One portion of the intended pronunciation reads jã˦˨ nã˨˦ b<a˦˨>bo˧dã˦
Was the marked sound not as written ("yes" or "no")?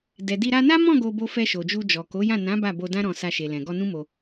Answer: no